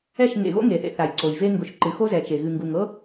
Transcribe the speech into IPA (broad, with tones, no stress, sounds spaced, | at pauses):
ɛ˦˨ ʃ ŋ ḛ˨ ɣ o̰˦ ŋ e˨ θ ḛ˧ θ a˨ j ǀ o˨ j v e˦ ŋ ɡ ʊ˧ ʃ ǃ ɨ˨ x o˦ z ɛ˨ t͡ʃ e˨ ɣ ɨ˨ ŋ ɡ u˨ ŋ ɤ˦